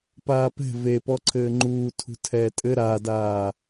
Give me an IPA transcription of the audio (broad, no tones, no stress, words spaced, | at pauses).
paːpɛ̤ vepɔ ǀʰɘːŋ͡ǃuː tʰṳtʰɛːtʼɘ ɾadaː